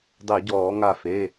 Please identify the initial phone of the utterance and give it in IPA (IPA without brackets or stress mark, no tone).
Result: dˤ